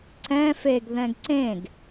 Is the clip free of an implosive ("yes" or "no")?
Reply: yes